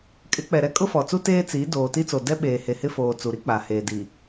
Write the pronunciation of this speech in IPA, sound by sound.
kʼɪ˨˦k͡pɛ˨ɾɛ˦ kʼʊ˦fɔ˨t͡su˦ teː˦t͡si˨˦ doː˨ti˦t͡so˨ dɛ˦ɓeː˨he˨ hɪ˦foː˨ t͡su˨ɾi˦k͡pa˨heː˨ di˨

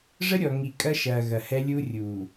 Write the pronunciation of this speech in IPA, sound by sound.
ʐə˦ɾʲɔ˨ŋi˨ kʼɐ˦ʃɐː˨ ɣɐ˨hɛ˦lʲuː˦rʲuː˨

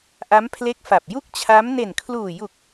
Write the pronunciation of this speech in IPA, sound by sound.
ʔa˦˥mpʰle˦˥k̚ fa˨˩p̚ ju˥˩k̚t͡ɕʰa˦˥m ne˨˩nkʰluː˨˩ju˨˩k̚

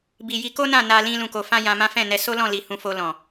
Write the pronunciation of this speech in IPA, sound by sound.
bi˨ ji˧ko˦nã˦˨ na˧lĩ˧ lũ˨ko˨fã˧ jã˧mã˦ fɛ̃˦˨nɛ˧ so˦lɔ̃˦˨ li˨ hũ˧fo˧lɔ̃˨

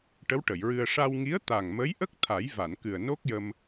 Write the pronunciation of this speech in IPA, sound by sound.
ʈə˧˥wʈə˨˩˨jɹɨ˧ə̯ ʂa˧wŋi˧˥ə̯ t̪a˨˩ŋmə˧˥jʔə˦˥k̚ t̪ʰa˨˩˦j va˨˩˨nkɨ˨˩ə̯ no˦˥k̚jə˧m

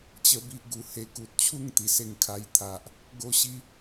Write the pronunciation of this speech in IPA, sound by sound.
t͡ɕə˦bi˦ʔɡu˨˩he˧ ku˨t̚t͡ɕʰu˥˧ŋ t̪i˨˩se˧ŋkʰa˧jt̪ʰa˨ʔ | ɡo˦ɕi˦

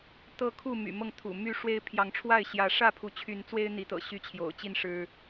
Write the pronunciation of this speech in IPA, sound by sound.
t̪ɤ˦kʰu˥˨ my̰˨˩mɤ˥˨ŋt̪ʰṵ˨˩ my˥˨ ʂwe˦ɪ̯ pʰjɑ˨˦ŋʈ͡ʂʰwa˥˨ɪ̯ɕjä˨˦ ʂä˥˨pʰu˨˦t͡ɕʰy˨˦nt͡swe˦ɪ̯ n̪i˨˦t̪ɤ̰˨˩ ɕy˥˨t͡ɕʰjo̰˨˩ʊ̯ t͡ɕi˥˨n ʂɻ̩˦

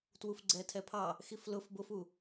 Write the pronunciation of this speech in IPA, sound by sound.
twufɡ͡ǀɛtʰɛpʰɑ | xiflʊf bʊfu

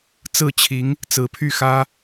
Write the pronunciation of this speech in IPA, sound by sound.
t͡sɹ̩˥˩t͡ɕʰi˧˥ŋ | t͡sɹ̩˧˥pʰy˥˩ xä˥

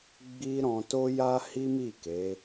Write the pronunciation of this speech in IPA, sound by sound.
ɡ͡bi˦ ɾɔ̃˧to˦ ja˦hi˦mi˦˨ ke˨˦

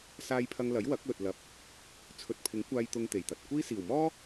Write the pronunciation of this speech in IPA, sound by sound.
saː˧jpʰɐ˧ŋlɐ˨˥j wɐ˨˥k̚lɵ˨t̚lɐ˨˥p̚ | t͡sʰɵ˨˥t̚pʰɪ˨˥ŋ kʷaː˧j t̪ʊ˧ŋt̪e˨˩jt̪ɐ˨t̚kʷiː˥ siː˨˩wmɔː˥

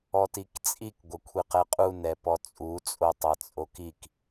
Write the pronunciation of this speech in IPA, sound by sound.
ɔtikt͡sʼik ɡʷɐkʷʰiqɛqʼun ɛpɔt͡sʼu t͡sʼotˤat͡sʼokik

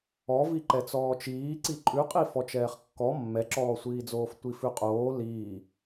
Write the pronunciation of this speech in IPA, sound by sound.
ɔvi ǃɛt͡sɔːt͡ʃiː ǀiǃʼʉqʼi fɔt͡ʃɛːχkːɔ mːɛǁɔːsʷiːd͡zoːf tʷifʉqʼoː liː

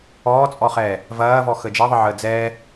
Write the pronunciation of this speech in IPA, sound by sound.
ɔːt͡sʼɔχɛː | vɐːvɔ xəd͡ʒɛðˤəʕəː d͡zɛː

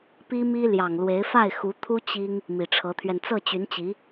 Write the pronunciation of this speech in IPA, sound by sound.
pi˥mi˥ ljɑ˨˩ŋlwe˧˥ɪ̯ fa˥˩ɪ̯xu˧˥t̪ʰu˥ t͡ɕi˥ŋ | mi˨˩ʈ͡ʂʰɤ˧˥t̪ʰɥɛ˧n t͡sɤ˥˩t͡ɕy˧˥n t͡ɕi˧˥

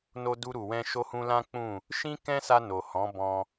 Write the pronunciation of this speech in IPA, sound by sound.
no˧ du˧ɾu˨wɛ̃˧ ʃo˧hũ˧lã˦k͡pũ˦˨ | ʃĩ˦kɛ̃˦sa˧ no˨hɔ̃˨˦ bɔ̃˧

